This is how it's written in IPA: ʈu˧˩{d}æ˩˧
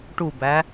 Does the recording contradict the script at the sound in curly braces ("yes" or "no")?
yes